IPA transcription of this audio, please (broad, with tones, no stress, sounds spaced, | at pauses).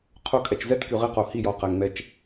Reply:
qʰ o˧ kʼ ɛ˨ t͡ʃ z ɛ˦ t k y˨ ʁ i˧ q o˨ h i˦˨ j ɔ˨ q ɛ˨ ŋ ŋ͡m ɛ˦ t͡ʃ